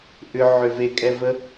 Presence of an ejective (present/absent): present